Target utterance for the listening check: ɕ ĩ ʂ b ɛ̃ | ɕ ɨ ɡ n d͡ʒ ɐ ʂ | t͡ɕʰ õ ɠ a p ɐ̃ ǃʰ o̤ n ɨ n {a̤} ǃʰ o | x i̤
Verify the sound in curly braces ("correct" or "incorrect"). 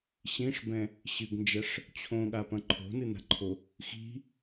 correct